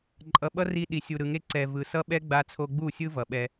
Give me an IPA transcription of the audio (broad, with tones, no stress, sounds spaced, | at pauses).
ǃʼ ʌ˨ ɓ ʌ˦ r i˧ ɗ i˨ sʲ u˨ ɾ ɯ˨ ŋ e˦ ǀ ɛ˨ v ɯ˨ s ʌ˦ ɓ ɛ˦ ɡ͡b a˧ t͡sʰ o˧ ɡ͡b u˦˨ sʲ ɯ˦ v ʌ˨ ɓ ɛ˧